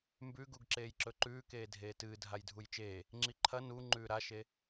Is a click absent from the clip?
no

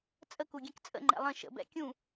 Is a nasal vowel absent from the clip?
no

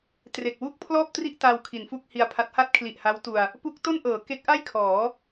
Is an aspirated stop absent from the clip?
no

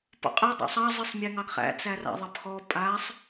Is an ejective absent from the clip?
no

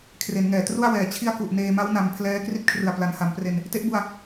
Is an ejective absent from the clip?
yes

